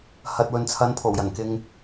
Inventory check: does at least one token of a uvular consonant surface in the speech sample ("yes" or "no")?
no